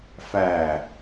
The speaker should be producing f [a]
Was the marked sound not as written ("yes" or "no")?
yes